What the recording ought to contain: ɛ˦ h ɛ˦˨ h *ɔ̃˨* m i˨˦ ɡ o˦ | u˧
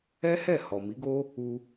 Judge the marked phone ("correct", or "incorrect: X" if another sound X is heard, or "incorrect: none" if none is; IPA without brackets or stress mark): incorrect: ɔ˨